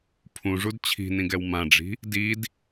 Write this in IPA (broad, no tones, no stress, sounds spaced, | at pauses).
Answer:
pʰ ũ ʐ u d t͡ɕʰ i̤ n ĩ ɡ ɛ w m ã ɖ͡ʐ i̤ | d i d